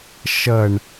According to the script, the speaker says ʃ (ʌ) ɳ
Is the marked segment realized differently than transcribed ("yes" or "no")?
no